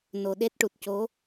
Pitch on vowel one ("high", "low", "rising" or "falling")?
low